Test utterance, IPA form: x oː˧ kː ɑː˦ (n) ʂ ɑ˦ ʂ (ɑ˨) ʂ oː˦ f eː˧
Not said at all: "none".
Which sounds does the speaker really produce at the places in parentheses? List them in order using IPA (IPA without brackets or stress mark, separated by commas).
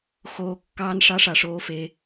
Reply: n, ɑ˨